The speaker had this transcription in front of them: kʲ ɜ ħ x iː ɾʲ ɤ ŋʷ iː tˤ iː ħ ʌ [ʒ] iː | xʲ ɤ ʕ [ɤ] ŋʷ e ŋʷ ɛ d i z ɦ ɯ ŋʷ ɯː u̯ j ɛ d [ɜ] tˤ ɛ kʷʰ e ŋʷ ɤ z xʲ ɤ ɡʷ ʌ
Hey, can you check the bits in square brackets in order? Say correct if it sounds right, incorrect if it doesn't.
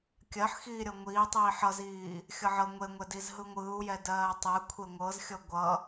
incorrect, correct, incorrect

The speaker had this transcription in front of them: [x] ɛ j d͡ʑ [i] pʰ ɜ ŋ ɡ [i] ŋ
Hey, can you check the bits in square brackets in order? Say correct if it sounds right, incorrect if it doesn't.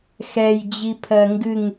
correct, correct, incorrect

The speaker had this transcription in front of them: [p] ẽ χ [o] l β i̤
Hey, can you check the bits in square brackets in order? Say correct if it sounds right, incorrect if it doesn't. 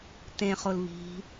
incorrect, correct

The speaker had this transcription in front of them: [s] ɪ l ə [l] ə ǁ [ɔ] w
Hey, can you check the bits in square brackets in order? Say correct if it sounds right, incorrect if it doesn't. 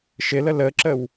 incorrect, correct, incorrect

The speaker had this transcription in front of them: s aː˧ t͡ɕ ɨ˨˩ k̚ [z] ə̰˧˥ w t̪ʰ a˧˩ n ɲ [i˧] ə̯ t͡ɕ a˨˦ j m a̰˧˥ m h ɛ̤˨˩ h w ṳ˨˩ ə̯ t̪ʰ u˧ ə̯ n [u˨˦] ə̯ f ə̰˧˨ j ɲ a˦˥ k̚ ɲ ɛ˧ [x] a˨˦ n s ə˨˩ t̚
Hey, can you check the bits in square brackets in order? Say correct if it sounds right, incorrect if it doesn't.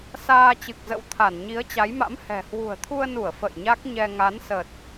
correct, incorrect, incorrect, incorrect

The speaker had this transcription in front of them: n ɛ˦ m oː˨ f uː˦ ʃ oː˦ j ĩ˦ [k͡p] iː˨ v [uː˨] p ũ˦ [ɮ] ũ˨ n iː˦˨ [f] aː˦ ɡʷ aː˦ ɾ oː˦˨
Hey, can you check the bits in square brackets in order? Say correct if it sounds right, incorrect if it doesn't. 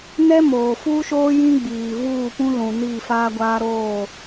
incorrect, incorrect, incorrect, correct

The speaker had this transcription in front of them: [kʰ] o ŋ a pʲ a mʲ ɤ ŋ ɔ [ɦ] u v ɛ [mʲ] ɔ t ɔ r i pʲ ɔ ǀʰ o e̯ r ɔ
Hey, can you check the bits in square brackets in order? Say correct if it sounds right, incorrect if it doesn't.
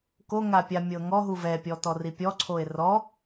incorrect, correct, incorrect

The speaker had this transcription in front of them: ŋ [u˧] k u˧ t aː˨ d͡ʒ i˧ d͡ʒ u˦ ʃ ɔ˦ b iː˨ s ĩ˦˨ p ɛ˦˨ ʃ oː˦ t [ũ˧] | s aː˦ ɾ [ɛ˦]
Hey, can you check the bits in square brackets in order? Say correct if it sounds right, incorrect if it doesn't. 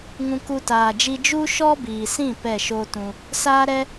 incorrect, correct, correct

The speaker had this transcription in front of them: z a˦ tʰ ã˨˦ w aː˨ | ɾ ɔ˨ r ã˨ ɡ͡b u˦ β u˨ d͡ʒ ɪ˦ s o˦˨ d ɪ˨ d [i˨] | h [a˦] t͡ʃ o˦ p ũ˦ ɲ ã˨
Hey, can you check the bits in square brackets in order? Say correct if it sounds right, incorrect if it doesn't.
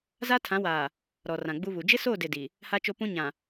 correct, correct

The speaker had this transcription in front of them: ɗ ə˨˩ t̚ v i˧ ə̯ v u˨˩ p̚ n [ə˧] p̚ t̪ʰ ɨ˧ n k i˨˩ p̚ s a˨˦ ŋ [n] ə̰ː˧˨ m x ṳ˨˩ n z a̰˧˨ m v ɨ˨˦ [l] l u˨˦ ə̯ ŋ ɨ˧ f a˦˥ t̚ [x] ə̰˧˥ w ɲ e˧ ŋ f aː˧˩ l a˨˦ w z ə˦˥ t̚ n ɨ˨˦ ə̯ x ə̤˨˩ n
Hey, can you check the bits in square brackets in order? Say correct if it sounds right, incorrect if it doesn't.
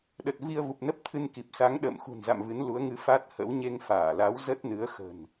incorrect, incorrect, incorrect, incorrect

